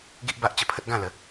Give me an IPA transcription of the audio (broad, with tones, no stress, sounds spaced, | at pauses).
ɡ i˦ ʔ b a˦ ʔ t͡ɕ ə˧ pʰ ə˦ t̚ ɡ ã˥˧ l ə˨˦